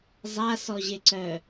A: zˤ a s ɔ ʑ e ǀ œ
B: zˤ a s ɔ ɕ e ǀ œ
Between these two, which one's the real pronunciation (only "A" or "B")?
A